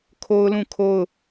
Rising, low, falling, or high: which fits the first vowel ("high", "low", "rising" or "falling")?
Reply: high